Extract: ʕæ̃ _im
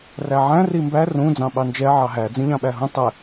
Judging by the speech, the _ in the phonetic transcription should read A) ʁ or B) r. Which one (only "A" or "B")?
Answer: B